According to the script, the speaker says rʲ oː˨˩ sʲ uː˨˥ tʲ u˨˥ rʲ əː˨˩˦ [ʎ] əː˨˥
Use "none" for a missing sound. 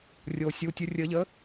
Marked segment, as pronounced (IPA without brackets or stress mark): ʎ